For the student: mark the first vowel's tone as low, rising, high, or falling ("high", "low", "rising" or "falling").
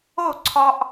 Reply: falling